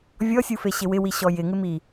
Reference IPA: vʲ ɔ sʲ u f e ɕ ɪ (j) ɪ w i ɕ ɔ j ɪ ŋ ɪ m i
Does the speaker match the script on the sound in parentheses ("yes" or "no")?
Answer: no